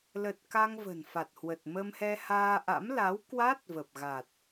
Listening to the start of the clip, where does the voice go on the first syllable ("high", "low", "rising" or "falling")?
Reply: low